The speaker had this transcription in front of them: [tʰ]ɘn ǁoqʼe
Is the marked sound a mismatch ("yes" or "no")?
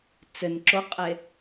yes